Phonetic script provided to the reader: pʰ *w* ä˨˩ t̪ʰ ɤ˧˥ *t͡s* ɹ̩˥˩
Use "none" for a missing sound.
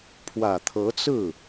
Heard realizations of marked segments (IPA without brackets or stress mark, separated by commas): w, t͡s